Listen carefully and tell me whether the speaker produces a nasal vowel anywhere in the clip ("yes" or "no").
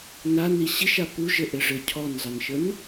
no